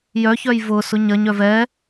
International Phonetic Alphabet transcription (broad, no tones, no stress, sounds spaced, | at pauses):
j œ ç œ j v ʊ s ʊ ɲ ɐ ɲ œ v ɛ